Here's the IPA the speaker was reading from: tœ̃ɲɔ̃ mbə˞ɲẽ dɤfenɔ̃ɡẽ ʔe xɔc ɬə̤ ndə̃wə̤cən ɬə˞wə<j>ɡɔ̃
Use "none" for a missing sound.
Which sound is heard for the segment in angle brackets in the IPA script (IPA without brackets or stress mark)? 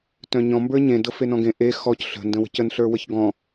ç